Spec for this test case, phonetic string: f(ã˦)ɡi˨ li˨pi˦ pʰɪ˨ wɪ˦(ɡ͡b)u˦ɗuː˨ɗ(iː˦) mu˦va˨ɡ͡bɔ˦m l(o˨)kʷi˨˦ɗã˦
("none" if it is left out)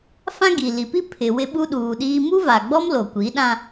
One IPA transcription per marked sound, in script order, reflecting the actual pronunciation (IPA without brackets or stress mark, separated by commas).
ã˦, ɓ, iː˦, o˨